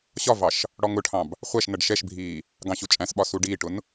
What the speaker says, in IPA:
ɕ ɒ v ɑ ʃ | ɽ ɔ ŋ ʊ ʈʰ ɑ̃ b | χʷ æ ʃ n ʌ ɖ ʃ ɛ ʃ bʱ iː | ɡ ɑ̃ ɕ u t͡ʃʼ æ̃ s ɓ ɒ s u ɖ iː ʈ ʊ n

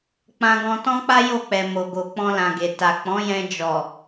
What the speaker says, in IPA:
k͡p ã˧ ɡ ɔ̃˧ t ɔ̃˦ k͡p a˦ j o˦˨ k͡p ɛ˨ m o˨ ɡ o˨ k͡p ɔ̃˧ l ã˨ ɡ e˨ t a˨ k͡p ɔ̃˨˦ j ɛ̃˧ d͡ʒ ɔ˨

